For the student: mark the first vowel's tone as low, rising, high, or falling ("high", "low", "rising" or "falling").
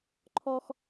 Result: low